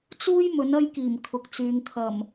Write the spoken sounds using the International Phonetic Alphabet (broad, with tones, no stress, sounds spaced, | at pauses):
t͡s uː˥ j m ɵ˨˥ n ɐ˥ j k iː˨˩ m kʰ ʊ˨ k̚ t͡s yː˨ ŋ kʰ ɐ˨˩ m